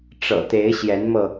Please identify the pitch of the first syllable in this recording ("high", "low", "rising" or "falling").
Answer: low